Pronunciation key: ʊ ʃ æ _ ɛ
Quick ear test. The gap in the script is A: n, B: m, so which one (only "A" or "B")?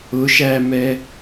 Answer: B